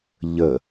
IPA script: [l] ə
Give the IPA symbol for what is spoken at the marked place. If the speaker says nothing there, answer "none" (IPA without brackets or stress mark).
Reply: ʎ